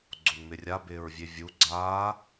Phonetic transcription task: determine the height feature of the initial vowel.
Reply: mid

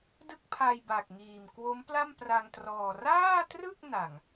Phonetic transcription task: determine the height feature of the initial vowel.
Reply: high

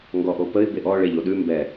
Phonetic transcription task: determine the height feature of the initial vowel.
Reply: mid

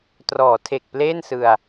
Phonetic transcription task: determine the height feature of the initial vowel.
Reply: mid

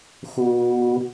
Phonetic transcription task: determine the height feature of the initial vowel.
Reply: high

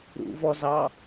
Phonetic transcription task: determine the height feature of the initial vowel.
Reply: high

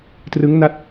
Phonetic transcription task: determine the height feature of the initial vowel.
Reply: high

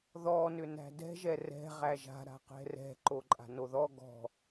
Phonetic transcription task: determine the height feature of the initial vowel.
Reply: mid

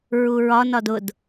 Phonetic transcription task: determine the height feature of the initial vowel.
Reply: high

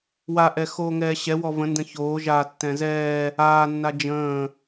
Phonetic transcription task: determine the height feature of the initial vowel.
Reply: low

